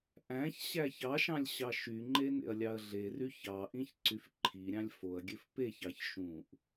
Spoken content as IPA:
ʔ æ̃ ç ɕ æ ç ɑ ʃ ɑ̃ lʲ ɕ ɑ ʃ y ŋ͡ǃ e n ḛ ɐ̯ lʲ ɑ ɐ̯ ɮ e r y ç ɑ ʔ ĩ ç ǀ y f ǃʰ i ɾʲ ɑ̃ lʲ f o ɐ̯ ɡʲ ø f p e ç ɑ ç ʃ ũ ʔ

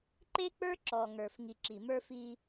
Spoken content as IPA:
ǃ e˦ k͡p ə˞˦ ǁ ɔ˨ ŋ ə˞˨ f ŋ i˨ ǁ i˨ m ə˞˦ f i˦

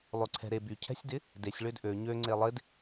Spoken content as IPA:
lˠ ø ǀʰ ɛ̤ ɾ e b y cʰ ɛ̤ sʲ d ɪ | d e sʲ ɭ ø d ʔ ø ɲ ø ŋ͡ǀ e lˠ ɪ d

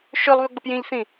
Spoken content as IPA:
ʃ ø lˠ β ø ɡ͡b ɐ p j ĩ ʎ θ ĩ

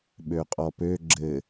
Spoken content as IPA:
ɓ ø qʼ ɔ p ø ɡ͡ǁ ɘ

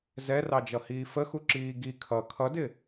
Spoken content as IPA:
z ɛ r ɑ d͡ʒ ʌ h iː f ə x u ǁ iː ɡ i kʰ ʌ kʰ ʌ d ɪ

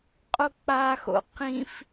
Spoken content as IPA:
qʼ o k͡p a x o̰ q ĩ f

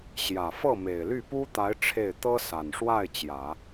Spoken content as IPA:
ɕ j ä˨˩ f ɤ˥˩ m e˨˩ ɪ̯ l y˥˩ p u˥ t̪ a˧˥ ɪ̯ ʈ͡ʂʰ e˥˩ ɪ̯ t̪ ɤ˥ s a˨˩ n ʂ w a˥˩ ɪ̯ t͡ɕ j ä˨˩˦

